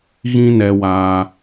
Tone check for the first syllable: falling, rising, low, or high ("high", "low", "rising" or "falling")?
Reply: high